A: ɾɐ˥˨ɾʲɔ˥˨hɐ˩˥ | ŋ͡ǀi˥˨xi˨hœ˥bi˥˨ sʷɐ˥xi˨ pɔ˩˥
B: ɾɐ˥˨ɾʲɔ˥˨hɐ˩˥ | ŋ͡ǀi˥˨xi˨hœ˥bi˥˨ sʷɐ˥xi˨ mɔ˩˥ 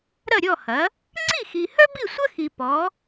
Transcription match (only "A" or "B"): A